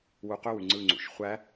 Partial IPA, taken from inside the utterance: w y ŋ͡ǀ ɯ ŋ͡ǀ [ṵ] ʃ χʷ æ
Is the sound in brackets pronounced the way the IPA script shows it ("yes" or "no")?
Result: yes